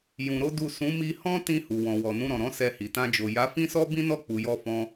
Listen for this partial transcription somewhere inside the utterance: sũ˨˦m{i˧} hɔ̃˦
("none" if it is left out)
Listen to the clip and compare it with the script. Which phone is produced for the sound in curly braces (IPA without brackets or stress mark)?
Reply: i˧